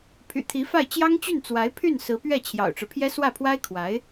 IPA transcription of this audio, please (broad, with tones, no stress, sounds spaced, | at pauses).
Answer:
pʰ y̰˨˩ t̪ʰ i˧˥ f a˥˩ ɪ̯ t͡ɕ j ɑ˥ ŋ t͡ɕ y˥˩ n t͡s w a˧˥ ɪ̯ pʰ y˥˩ n s ɹ̩˧˥ p ɥ ɛ˥˩ t͡ɕʰ j ɑ̰˨˩ ʊ̯ ʈ͡ʂ ɻ̩˦ pʰ j ɛ˥ s w ä˥˩ pʰ w a˥ ɪ̯ kʰ w a˧˥ ɪ̯